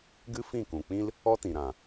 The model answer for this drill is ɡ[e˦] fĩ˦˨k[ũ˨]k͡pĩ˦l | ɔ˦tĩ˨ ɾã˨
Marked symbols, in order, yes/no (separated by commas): no, yes